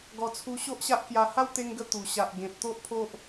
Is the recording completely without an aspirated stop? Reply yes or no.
no